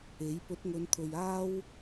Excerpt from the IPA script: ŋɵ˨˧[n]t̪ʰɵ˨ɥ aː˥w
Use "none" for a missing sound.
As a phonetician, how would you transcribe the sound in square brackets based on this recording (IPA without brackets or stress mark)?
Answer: n